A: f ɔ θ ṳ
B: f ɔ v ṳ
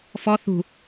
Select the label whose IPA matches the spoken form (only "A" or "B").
A